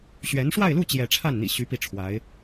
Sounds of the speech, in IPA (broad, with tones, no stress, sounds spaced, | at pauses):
ɕ ɥ ɛ˧˥ n ʂ w a˥˧ ɪ̯ l u˥˧ t͡ɕ j ɛ˥˧ ʈ͡ʂʰ a˥˩ n n̪ ḭ˨˩ ɕ y˧˥ p i˥˩ ʈ͡ʂʰ w a˧˥ ɪ̯